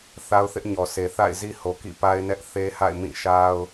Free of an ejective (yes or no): yes